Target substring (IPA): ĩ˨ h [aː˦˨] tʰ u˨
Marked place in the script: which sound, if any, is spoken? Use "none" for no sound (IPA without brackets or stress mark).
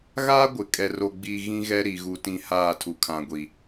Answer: aː˦˨